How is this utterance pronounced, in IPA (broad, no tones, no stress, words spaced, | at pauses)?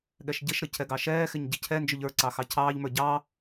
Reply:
ɠɛʃɟɪʃɾə cʰɛɡɑʃɛːxɪɲ ɟɪcʰɛnd͡ʒʊʎ ə˞ǀɑ xɑcʰɑːʎmə˞ ɟɑ